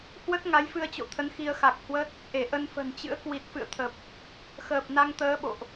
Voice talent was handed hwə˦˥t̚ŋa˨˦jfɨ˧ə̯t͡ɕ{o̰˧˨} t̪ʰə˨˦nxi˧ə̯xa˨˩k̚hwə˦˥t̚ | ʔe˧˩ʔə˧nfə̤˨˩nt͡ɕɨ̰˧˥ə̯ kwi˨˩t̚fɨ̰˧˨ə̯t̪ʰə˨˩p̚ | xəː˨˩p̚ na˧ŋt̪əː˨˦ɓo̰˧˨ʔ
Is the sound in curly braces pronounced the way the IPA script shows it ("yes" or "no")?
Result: yes